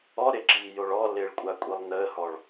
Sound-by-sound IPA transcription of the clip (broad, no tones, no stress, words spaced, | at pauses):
ɔ ɾɪǁiːjoɭ ɔlɪːɭkʷʼakʷʼilˠ nəːhɔɭ